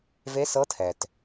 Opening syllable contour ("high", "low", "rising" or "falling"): rising